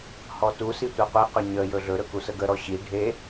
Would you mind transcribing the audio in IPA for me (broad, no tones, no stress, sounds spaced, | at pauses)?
h ɔ t u s i tʷ a qʷ e q ɵ ɲ ə j ɵ ɮ ɵ ɾ ɵ k u s ə ɡ ə ɾ ɔ ɕ i ɖʱ e